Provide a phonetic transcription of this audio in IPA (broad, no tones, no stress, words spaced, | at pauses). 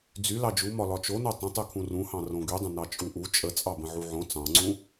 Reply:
d͡zy lɑd͡ʒumɒ lɒt͡ʃono tˤə̃tˤykʰũ rũhɑ̃ rõɡydˤə̃ nɑt͡ʃʼuʔu t͡ʃʼət͡sʼɑ bə̃ʕuʕõ t͡sɑ̃ŋ͡ǀũ